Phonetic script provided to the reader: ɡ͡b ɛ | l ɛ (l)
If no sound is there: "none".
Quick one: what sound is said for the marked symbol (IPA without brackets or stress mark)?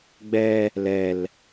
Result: l